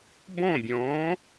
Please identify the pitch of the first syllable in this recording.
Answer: falling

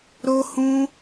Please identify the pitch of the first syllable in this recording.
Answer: high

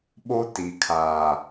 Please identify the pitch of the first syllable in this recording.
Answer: high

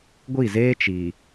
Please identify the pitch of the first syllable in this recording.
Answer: falling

